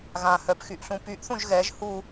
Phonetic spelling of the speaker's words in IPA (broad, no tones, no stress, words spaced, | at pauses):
ɣã hœpxyʔɬũ pyʔθũʒ ɣɛʒ hu